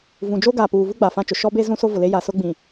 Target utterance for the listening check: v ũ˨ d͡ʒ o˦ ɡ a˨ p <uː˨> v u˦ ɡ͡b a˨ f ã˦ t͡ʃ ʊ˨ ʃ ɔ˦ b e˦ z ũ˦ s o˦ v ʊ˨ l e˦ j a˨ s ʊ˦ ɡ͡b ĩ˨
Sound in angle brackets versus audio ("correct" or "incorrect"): correct